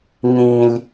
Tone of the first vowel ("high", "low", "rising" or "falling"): low